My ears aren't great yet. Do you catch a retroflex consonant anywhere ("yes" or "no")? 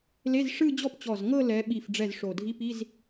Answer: yes